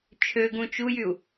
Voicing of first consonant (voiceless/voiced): voiceless